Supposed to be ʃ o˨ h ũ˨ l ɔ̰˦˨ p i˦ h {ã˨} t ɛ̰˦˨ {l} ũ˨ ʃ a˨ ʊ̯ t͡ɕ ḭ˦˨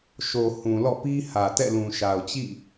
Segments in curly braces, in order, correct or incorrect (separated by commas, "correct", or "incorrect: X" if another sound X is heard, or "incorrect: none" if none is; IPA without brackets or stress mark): incorrect: ä˨, correct